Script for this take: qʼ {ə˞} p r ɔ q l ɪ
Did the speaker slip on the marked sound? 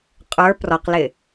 no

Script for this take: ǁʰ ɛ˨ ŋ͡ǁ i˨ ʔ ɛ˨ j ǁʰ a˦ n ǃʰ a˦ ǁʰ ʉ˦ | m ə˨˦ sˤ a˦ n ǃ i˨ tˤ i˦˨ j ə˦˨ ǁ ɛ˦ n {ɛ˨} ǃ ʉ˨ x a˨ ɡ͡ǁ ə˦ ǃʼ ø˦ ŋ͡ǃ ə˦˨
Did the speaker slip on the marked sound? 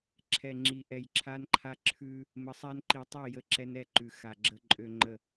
yes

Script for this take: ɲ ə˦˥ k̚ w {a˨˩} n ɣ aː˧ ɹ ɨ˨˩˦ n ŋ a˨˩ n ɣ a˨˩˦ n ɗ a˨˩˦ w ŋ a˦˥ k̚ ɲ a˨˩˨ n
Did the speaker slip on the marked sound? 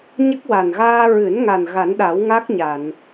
no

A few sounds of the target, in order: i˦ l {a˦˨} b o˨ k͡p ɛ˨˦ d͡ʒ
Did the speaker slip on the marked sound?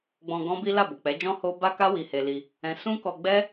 no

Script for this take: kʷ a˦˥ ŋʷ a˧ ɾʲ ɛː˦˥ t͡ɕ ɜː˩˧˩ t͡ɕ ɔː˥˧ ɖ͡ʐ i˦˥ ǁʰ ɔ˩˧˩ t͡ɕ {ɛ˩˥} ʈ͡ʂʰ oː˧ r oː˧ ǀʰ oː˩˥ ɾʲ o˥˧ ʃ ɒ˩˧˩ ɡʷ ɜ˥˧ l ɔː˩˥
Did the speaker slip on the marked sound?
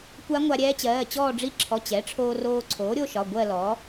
no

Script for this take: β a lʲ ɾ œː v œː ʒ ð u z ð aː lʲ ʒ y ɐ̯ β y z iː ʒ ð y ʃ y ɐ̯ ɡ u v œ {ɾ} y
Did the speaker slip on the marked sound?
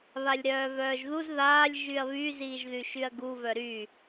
no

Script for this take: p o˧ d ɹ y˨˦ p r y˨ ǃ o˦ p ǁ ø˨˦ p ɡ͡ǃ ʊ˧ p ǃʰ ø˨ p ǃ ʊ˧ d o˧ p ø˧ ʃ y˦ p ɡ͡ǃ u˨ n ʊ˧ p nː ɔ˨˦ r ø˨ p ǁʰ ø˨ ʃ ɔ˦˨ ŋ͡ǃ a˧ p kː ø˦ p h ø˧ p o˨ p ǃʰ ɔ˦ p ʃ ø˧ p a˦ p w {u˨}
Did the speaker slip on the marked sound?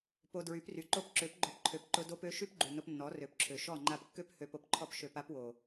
yes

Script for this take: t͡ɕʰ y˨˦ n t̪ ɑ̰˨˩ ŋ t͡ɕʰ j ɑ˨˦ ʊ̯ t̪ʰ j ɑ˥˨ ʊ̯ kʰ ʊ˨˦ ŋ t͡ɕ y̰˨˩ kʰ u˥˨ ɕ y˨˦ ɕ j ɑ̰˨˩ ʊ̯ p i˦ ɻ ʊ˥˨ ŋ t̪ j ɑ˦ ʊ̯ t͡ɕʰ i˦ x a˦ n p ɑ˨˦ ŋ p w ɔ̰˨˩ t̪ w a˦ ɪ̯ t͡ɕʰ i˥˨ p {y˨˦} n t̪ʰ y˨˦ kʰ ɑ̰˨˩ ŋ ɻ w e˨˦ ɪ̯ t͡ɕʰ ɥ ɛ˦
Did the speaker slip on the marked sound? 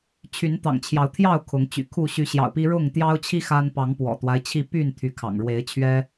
yes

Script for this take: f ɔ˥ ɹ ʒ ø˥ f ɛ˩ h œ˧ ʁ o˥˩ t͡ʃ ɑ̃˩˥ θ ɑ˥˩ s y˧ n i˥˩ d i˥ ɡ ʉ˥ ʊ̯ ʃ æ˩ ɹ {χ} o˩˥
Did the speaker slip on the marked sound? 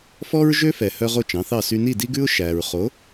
no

